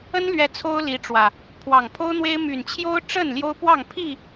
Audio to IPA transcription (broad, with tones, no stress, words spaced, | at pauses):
ə˦nlɥɛ˨˦ t͡sʰo˦ʊ̯li˨˦ʈ͡ʂwä˨˩ | pʰwɑ˨˩ŋpʰo˦ʊ̯n̪we˦ɪ̯ my˨˩nt͡ɕʰjo˦ʊ̯ʈ͡ʂə˥˨n ljo˦ʊ̯pwɑ˥˨ŋ pʰi˥˨